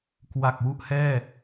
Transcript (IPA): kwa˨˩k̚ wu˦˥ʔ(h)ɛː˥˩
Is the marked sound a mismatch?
no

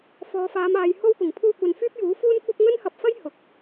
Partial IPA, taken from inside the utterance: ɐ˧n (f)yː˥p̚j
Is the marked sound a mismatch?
no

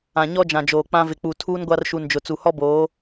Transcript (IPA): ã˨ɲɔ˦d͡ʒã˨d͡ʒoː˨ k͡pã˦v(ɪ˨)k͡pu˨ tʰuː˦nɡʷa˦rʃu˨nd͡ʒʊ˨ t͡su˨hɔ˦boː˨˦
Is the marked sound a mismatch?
no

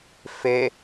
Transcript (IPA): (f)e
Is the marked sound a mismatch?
no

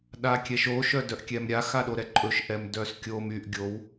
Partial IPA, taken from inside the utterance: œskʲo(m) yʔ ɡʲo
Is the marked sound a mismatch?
no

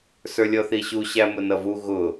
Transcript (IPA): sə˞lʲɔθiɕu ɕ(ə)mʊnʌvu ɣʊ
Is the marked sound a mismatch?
yes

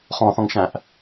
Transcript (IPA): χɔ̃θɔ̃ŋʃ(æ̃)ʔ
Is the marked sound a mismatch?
no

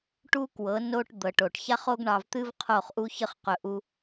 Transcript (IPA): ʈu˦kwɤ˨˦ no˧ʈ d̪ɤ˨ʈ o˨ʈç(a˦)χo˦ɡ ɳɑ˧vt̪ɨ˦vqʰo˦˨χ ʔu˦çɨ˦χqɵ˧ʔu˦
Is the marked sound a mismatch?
no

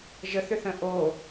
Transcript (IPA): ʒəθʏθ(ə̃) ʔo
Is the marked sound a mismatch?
no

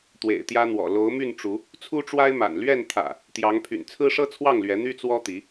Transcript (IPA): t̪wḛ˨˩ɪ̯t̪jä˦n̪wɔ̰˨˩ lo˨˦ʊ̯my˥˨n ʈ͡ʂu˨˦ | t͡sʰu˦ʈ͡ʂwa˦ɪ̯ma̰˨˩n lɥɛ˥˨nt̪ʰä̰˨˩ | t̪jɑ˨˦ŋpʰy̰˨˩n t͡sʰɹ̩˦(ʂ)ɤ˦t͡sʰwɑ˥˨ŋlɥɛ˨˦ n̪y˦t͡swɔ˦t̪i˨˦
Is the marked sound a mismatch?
no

